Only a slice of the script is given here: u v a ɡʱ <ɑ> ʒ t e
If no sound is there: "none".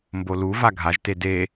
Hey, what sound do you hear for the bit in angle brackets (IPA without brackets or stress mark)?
a